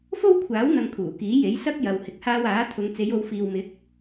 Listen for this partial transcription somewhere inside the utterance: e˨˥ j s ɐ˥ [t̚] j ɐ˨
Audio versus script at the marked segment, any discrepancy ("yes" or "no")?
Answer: yes